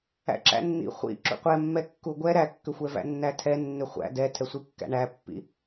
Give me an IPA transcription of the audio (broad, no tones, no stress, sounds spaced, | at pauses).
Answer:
æ̰ ǁ æ̰ nː ḭ χʷ ḭ ǁ ṵ qʷ ɛ mː ɛ kː u ɡʷ ɛ ɾ æ kː ʏ xʷ ɛ v æ̰ nː æ tʰ ɛ nː ʏ χʷ æ̰ d ɛ tʰ ɛ sʷ i kː æ̰ ɳ æ pː ḭ